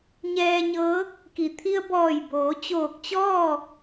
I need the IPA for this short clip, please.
ɲɛː˧ɲɤː˧˥k̚ | ki˩ t̪ʰi˧ə̯bɔː˧˩jboː˩˧ t͡ɕoː˧˩k̚t͡ɕɔː˥˨

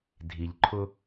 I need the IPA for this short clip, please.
dʱi˨ʎ ǃʰʊ˦

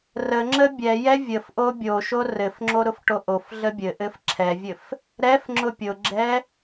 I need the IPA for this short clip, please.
rəŋ͡ǁə bʲɛjɛ vʲəfʔo bʲoʃo rɘfŋ͡ǁo ɾʊfʈoʔofɮə bʲɘʔɘf ǁʰɛvʲɘf | ɾɛfŋ͡ǁʊ pʲʊɡ͡ǁɛ

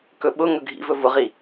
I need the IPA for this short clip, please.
kɵɓʊ ŋɵɡʱḭvɵ vʊʁi

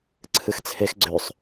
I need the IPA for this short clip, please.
ǀʰɨxt͡sʰex ɡ͡ǀøsˤ

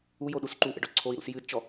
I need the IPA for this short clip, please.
ujoɗus ǃuʔə̰ɖɔ ǀʰoi̯ɾṵs jɨdt͡ʃɔ

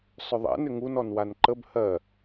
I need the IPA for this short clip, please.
sˤʏðˤɛ̰ nʏŋun ɔnwanǃəb hɜ

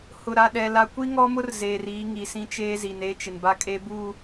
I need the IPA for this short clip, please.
hʊ˨ɾa˨ɗɛ˨ la˨kʷi˦ ŋɔ˦mʊ˦r zeː˨riː˨˦ŋi˨sĩ˦ t͡ʃeː˦zi˨ne˦ t͡ʃɪ˨nba˦kʼe˦buː˦˨

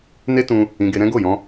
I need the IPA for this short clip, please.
ne˦tũ˧ | ĩ˧ɡe˧ɾɛ̃˦ ɡo˦˨jɔ̃˧

